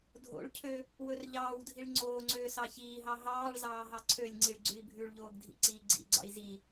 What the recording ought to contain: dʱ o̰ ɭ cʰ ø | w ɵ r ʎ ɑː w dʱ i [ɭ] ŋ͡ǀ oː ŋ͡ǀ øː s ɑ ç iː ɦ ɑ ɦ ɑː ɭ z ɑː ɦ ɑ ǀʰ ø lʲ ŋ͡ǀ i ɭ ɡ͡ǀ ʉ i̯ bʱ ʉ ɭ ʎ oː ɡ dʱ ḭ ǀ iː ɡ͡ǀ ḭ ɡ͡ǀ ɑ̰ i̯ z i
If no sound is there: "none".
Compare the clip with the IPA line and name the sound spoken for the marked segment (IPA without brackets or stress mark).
ɭ